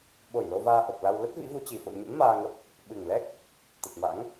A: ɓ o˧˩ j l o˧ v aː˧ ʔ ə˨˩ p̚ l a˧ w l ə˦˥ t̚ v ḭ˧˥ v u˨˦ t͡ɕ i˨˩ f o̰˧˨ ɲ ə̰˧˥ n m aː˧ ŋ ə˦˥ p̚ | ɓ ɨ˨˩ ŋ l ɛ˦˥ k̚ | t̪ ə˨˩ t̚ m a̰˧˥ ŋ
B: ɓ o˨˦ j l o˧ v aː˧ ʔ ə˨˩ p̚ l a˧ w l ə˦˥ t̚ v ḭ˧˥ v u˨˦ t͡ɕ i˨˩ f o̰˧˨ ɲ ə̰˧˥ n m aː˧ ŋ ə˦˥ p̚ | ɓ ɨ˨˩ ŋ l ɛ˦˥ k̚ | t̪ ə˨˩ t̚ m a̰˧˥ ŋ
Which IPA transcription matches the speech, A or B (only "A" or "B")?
A